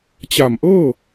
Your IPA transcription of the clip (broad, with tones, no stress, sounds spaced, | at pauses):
t͡ɕ a˨˩ m ʔ ɤː˥˩